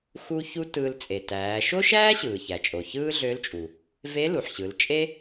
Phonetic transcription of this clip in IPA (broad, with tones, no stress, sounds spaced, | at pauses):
x u˧ ç u˧ t ɯː˧ l t͡sʼ e˩ t æː˩˧ ʃ o˥ ʃ æː˥ ɕ ɯː˩ ç æ˩ t͡ʃʼ o˩ ç ɯː˥ ɮ ø˧˥ l t͡ʃʼ u˩ | v e˧˥ l u˩ ħ ɕ ɯ˩˧ l t͡ʃʼ e˥